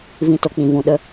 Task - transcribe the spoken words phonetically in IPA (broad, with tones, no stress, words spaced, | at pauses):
vĩ˧to˨k͡pĩ˨ vũ˨ɗə˧